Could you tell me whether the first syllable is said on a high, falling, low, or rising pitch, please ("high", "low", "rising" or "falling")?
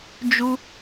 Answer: high